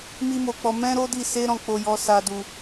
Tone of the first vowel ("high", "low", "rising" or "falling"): high